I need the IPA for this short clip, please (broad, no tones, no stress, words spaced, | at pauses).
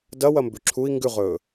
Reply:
dɐwɐ mbʉǁʰui̯ ŋɡʉʁɵː